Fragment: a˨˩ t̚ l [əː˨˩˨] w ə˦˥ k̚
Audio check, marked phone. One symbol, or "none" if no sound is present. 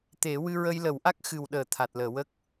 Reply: əː˨˩˨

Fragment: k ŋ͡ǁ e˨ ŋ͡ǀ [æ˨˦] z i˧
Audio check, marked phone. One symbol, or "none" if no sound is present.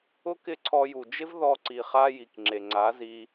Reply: a˨˦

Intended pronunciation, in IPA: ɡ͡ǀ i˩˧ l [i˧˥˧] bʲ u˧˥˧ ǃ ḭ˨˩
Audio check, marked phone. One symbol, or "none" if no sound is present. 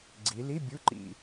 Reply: i˧˥˧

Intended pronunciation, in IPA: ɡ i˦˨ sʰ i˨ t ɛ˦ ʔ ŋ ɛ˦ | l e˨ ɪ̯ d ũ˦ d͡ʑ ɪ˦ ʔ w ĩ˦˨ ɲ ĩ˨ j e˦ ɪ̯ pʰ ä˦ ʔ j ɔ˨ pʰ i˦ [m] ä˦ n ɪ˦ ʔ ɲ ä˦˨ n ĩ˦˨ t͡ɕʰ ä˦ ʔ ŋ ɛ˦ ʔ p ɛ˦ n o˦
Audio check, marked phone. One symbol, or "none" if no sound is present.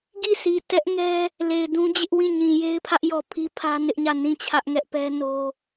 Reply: pʰ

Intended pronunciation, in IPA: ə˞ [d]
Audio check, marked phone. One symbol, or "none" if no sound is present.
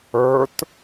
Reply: t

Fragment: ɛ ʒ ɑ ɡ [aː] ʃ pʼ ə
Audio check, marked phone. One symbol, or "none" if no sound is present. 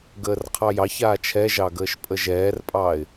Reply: əː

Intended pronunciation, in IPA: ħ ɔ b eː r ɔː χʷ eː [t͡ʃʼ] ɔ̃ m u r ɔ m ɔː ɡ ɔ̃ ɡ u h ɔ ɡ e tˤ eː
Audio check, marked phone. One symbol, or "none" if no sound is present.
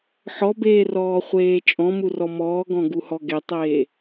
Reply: t͡ʃʼ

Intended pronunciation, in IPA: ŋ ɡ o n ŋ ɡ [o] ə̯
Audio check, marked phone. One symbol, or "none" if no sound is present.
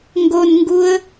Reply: u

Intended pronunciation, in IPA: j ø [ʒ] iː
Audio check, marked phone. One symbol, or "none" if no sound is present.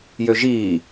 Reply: ʒ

